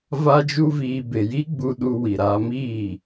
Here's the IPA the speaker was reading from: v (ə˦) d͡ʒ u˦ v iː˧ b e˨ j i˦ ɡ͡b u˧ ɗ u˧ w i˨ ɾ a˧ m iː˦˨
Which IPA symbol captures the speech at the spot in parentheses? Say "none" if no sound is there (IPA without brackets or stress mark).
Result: a˦